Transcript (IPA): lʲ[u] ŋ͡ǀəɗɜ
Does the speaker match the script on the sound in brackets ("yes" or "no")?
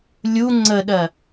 yes